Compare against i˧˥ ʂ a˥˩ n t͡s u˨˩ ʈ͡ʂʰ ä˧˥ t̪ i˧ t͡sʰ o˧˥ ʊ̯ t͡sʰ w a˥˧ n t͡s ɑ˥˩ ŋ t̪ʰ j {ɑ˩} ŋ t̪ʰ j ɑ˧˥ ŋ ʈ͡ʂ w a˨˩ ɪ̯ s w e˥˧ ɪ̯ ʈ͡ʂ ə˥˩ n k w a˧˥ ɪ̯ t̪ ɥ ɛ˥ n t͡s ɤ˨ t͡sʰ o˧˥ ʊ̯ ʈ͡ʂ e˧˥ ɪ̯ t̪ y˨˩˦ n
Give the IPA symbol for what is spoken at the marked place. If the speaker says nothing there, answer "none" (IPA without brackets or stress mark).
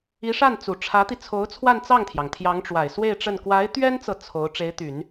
ɑ˩